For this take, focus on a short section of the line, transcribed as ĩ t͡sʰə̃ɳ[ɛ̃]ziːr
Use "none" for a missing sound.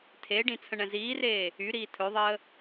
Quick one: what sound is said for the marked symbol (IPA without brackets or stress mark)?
ɛ̃